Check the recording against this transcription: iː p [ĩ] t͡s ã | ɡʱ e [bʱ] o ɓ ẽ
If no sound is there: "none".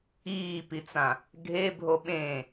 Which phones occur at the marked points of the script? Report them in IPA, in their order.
i, bʱ

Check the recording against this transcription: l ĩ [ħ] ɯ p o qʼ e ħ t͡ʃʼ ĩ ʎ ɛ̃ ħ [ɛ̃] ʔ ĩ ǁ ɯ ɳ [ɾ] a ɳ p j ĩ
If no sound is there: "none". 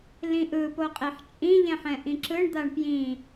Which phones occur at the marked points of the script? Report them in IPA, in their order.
ʔ, ɛ̃, d̪

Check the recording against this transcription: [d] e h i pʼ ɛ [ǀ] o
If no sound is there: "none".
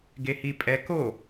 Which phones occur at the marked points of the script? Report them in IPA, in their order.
ɡ, k

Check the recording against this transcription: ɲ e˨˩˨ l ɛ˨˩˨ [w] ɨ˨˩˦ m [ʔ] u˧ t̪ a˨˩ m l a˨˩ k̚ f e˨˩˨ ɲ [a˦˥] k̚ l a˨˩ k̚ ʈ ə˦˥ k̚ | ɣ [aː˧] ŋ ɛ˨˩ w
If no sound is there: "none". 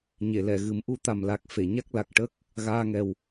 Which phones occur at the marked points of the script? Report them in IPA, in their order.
ɣ, ʔ, a˦˥, aː˧

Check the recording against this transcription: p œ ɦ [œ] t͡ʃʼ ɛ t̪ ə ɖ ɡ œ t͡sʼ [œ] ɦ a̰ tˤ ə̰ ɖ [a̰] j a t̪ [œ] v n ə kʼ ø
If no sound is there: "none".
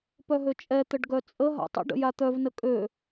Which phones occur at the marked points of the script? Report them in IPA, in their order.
ø, ə, ə̰, œ

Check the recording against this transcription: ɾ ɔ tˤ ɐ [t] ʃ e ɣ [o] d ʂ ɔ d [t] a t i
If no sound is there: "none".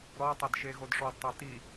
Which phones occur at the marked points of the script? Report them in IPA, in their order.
d, o, tˤ

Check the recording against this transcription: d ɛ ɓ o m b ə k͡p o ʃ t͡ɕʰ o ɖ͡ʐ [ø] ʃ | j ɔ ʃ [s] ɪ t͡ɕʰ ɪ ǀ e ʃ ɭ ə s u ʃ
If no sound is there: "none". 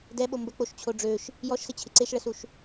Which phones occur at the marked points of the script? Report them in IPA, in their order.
ø, s

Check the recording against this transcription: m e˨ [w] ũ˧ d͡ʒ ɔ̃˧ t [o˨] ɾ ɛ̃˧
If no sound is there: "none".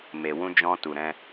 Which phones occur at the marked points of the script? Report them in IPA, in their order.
w, u˨

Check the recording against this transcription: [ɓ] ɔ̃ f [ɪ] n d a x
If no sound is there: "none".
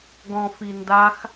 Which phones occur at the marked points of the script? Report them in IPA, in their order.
ɡ, i

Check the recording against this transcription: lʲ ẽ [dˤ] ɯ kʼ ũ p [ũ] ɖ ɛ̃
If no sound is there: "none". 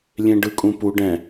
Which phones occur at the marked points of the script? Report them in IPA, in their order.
ɖ, u

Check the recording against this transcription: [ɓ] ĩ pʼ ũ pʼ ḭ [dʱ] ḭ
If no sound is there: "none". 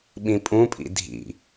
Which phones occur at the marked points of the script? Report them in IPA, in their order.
ɓ, dʱ

